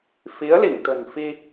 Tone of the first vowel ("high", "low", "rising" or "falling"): rising